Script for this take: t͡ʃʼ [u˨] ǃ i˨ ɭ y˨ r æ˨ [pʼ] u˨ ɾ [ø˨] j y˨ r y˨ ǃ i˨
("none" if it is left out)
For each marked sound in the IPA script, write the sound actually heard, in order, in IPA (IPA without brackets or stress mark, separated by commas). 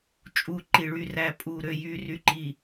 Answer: u˨, pʼ, ø˨